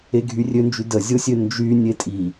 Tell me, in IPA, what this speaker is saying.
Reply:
eɡʱyrʲønd͡ʒy dəzʲosʲø nd͡ʒy nʲetʼi

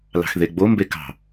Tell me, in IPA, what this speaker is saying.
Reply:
lɑ̤xðeɡ͡bo mbekɑ̤

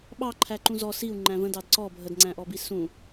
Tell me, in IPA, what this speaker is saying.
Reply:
ɓɑǃʰæǃũ zɔ siu̯ ŋ͡ǃæ̃və̃ dɑdǀɔ bʱədŋ͡ǀæ̃ʔɔbi sũ

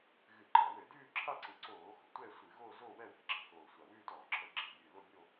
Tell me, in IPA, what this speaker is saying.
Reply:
ɣɨ˧˩˧ǃɑ˧˩˧wɘ˧˩˧ dʉː˥˧ǁʰa˥˧ǀɨ˨˩ ǀoː˧˩˧xo̤˧˩˧ tʷɛ˥˧sʷɨ˧˩˧ɣo˥˧ zo˥˧ wɛ˥˧wɛ̤˧˩˧ ǁɑ̤˨˩xoː˨˩ sʷa˨˩wʉː˥˧ tɔː˧˩˧ǁʰə˧˩˧ ɡ͡ǁɛ̤˨˩bʲɨː˨˩ lo˥˧bʲo˥˧

